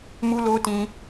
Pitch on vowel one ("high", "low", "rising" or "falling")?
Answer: high